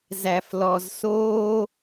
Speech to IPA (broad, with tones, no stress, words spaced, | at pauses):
zæ˨flɔ˨zsoː˦